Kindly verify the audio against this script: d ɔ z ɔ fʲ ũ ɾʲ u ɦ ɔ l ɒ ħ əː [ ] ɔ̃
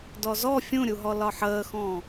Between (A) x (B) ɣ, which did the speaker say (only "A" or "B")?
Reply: A